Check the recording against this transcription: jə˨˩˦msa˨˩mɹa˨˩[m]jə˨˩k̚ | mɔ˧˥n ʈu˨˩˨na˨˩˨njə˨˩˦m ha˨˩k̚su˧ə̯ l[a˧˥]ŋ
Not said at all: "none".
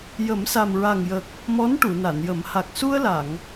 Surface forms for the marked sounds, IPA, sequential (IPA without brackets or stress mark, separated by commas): ŋ, a˨˩˨